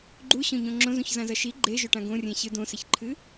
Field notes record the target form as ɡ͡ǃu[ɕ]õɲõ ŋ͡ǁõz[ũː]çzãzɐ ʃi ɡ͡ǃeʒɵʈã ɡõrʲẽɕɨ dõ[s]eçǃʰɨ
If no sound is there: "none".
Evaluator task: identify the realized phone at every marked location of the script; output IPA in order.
ɕ, ũ, s

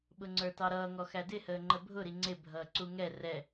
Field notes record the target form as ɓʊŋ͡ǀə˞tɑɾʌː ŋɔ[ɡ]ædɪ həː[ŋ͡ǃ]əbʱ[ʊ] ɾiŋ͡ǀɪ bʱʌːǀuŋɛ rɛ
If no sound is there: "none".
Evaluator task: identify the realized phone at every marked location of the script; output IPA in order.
x, ŋ͡ǃ, ʊ

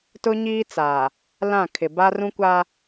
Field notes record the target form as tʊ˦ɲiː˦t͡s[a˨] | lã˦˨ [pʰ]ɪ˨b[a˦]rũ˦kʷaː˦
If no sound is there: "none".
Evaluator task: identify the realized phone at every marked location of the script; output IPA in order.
aː˨, kʰ, a˦

